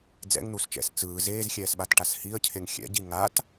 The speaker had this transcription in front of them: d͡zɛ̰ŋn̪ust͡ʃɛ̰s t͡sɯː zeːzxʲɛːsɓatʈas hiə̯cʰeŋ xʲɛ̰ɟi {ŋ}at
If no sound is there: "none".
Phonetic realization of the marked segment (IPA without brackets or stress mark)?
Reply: ŋ